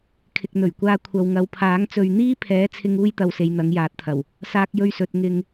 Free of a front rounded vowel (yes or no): yes